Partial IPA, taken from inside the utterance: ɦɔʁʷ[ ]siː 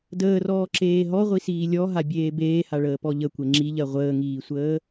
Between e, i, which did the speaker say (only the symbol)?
i